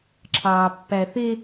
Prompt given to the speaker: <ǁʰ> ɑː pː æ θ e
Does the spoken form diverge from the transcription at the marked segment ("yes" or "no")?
no